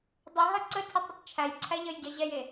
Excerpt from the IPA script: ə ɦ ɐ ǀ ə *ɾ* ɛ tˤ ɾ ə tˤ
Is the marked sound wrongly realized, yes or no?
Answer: yes